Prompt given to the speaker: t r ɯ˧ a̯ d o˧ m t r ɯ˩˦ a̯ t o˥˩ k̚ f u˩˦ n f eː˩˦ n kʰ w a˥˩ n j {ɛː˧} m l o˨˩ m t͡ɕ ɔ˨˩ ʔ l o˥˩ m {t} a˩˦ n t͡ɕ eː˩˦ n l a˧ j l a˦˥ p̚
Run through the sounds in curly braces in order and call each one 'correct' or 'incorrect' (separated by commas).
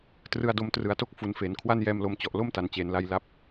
correct, correct